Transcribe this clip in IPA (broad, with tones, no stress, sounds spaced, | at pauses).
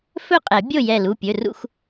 f ɵ˥˨ qʼ ɛ˨˩˦ bʲ o˥˨ j ɛ˧˩ l u˩˧˩ pʲ ɵ˩˧˩ r ṵ˥˨ x